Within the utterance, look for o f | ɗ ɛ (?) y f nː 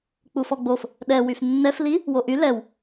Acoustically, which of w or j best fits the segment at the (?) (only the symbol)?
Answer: w